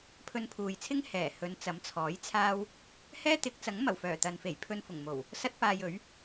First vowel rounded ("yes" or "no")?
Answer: yes